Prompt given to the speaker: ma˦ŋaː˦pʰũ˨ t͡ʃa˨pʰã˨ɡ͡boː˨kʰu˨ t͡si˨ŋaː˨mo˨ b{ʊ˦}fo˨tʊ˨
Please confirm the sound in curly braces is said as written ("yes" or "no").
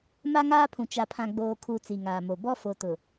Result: no